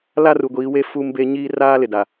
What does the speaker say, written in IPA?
l a˦ r u˨ ɡʷ iː˨˦ w e˦ f uː˦ m b e˦ ɲ iː˦ r aː˦ l ɪ˨ d a˨

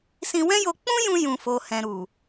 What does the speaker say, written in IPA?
s ĩ˧ w ɛ̃˦ j o˧ k͡p ũ˦ j ũ˧ j ũ˨ f o˨ h ɛ̃˨ ɾ u˨

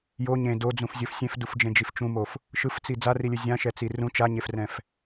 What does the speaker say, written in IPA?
j o ɲ ẽ d o d͡z ũ f zʲ ɯ f sʲ ẽ f d u f d͡ʒ ẽ d͡ʒ i f t͡ʃ ũ m o f | ʃ ɯ f t͡s i d͡z a r i lʲ ɯ zʲ ã ʃ ɛ t͡s i r ũ t͡ʃ a ɲ e f r ɛ̃ f

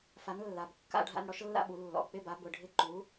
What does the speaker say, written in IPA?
f a˨˥ n lː a˩˧˩ b kː a̰˥˧ ɖʱ a̰˥˧ n ɽ ɔ˨˥ ʃ lː a̰˥˧ ɓ u˨˩˦ lː ɔ̰˩˧˩ k͡p ɪ˥˧ b a˨˥ b ʊ˩˧˩ ɖʱ ɪ˥˧ ǃ u˨˥

